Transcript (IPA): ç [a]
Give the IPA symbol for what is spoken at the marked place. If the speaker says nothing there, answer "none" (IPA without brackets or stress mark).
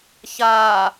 aː